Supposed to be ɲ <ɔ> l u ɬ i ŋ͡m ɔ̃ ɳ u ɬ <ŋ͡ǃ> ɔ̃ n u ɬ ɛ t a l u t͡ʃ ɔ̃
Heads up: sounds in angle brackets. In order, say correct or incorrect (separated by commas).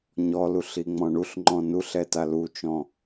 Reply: correct, correct